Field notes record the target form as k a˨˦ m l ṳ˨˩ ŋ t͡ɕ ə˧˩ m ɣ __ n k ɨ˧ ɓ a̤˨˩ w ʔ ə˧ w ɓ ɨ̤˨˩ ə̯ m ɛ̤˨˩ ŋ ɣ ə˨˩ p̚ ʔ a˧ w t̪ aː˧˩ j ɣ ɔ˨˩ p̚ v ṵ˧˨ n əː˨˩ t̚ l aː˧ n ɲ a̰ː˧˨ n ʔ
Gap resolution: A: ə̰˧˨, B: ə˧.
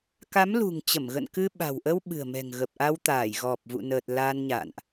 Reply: A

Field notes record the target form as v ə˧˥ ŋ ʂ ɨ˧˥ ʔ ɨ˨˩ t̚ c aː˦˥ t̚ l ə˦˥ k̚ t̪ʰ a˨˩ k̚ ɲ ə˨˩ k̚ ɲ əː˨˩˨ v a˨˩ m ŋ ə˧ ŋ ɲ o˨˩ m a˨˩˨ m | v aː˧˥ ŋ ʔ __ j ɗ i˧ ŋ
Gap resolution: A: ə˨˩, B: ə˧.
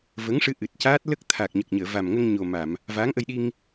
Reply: B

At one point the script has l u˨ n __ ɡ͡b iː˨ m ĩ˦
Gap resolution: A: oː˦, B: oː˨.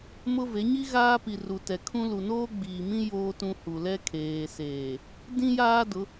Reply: A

